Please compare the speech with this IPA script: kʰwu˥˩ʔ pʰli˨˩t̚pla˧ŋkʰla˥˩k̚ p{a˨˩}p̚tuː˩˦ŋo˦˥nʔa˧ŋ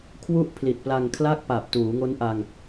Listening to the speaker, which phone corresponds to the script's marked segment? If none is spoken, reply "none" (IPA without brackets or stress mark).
a˨˩